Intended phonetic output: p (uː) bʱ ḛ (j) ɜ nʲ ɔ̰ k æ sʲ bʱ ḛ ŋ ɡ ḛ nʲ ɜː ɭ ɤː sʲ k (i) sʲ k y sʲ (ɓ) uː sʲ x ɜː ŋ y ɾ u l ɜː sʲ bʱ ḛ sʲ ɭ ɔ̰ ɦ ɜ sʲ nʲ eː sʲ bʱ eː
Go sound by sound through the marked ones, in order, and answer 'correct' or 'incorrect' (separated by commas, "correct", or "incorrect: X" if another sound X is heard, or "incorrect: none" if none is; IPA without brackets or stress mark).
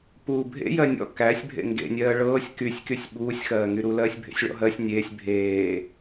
correct, correct, incorrect: y, correct